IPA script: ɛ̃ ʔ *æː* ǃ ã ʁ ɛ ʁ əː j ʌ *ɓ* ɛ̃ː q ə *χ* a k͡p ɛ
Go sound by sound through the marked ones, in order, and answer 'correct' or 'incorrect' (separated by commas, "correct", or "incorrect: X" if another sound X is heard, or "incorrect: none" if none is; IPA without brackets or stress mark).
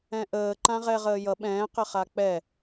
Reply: incorrect: əː, correct, correct